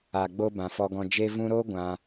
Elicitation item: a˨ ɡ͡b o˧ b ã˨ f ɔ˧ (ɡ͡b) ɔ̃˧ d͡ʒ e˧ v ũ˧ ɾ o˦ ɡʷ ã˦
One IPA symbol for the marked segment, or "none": ɡ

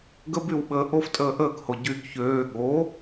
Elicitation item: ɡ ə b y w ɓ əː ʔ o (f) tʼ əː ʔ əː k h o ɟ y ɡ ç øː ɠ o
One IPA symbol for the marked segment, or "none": f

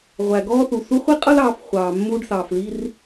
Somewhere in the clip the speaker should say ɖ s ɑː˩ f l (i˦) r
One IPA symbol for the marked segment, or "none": i˦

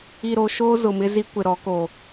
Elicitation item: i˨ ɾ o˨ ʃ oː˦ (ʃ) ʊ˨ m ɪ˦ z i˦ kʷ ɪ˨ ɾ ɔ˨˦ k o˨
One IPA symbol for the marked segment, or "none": z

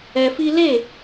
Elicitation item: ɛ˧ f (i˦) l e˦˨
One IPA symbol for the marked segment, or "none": i˦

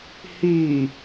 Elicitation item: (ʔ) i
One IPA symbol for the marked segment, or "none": h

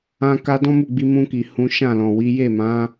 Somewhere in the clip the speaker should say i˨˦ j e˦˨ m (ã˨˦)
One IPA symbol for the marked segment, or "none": ã˨˦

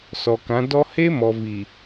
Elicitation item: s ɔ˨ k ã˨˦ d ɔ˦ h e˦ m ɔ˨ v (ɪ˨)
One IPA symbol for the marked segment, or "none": i˨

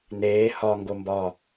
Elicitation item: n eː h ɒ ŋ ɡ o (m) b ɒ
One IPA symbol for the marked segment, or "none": m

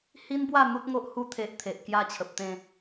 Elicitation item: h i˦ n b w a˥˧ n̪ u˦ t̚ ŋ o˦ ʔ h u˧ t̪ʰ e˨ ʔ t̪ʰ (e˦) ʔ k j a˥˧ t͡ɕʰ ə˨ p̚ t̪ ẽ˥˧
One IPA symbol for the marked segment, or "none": e˨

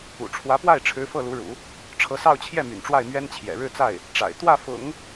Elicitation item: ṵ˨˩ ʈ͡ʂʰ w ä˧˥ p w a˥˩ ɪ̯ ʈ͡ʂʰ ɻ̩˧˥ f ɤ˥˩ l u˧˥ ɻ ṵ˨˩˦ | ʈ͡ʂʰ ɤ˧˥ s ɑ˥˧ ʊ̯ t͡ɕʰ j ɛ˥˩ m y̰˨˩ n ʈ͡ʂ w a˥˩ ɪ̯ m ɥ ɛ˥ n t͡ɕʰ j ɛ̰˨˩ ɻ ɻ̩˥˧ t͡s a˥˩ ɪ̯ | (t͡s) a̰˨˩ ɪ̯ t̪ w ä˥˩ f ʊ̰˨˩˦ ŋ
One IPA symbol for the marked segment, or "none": ʈ͡ʂ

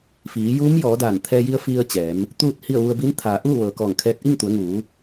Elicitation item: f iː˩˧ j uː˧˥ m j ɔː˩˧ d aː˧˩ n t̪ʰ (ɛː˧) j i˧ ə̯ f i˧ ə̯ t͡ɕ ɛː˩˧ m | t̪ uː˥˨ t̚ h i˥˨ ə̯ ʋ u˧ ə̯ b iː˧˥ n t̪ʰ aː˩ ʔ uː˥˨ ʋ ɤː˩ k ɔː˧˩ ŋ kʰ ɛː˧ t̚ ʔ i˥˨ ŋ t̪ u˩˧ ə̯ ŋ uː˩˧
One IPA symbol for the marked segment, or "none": ɛː˧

